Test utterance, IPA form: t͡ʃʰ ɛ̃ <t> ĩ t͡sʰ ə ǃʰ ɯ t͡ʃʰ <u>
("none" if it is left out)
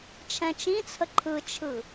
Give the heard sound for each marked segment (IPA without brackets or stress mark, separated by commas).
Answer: t͡ʃ, ɯ